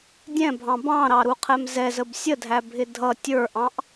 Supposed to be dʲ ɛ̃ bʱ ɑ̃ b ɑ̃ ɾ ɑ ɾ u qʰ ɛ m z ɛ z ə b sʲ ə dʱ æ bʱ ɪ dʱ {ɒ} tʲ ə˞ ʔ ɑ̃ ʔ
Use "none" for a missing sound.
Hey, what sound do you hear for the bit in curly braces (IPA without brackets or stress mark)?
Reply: ʌ